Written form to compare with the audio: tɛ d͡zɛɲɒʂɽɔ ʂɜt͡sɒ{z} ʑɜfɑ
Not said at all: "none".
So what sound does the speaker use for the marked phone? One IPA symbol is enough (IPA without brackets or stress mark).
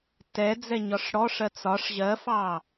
ʂ